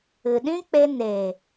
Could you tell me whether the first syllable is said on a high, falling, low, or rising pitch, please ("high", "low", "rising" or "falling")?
low